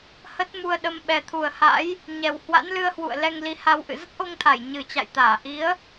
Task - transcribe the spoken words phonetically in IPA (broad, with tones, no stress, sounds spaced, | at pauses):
h ə˦˥ t̚ m u˧ ə̯ ɗ ə˧ m ɓ ɛ˨˩ t̪ʰ u˨˩ ə̯ h a̰˧˥ j | ɲ ɛ˨˩ w h w a̰˧˥ n l ɨ˧ ə̯ h w ṵ˧˨ ə̯ l ɛ˧ ŋ l i˨˦ h a˧ w ʔ ɨ̰˧˨ z ə˦˥ t̚ ʔ o˧ ŋ t̪ʰ a˧˩ j ɲ ɨ˨˩ t͡ɕ a̰˧˨ j t̪ aː˧˩ ʔ i˨˦ ə̯